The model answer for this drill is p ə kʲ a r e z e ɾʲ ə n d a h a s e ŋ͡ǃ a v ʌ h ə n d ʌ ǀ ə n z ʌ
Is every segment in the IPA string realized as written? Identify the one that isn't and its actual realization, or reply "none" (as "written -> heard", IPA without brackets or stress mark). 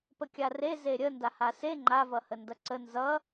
none